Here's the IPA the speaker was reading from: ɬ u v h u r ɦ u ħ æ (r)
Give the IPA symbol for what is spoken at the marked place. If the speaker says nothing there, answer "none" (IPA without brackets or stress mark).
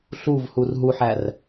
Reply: r